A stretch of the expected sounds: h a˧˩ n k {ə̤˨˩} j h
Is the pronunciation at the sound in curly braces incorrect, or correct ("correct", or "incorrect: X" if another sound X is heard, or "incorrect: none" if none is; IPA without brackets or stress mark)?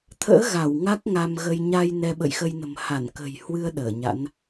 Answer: correct